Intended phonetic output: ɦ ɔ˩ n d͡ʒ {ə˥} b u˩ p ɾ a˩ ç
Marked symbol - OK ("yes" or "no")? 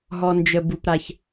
no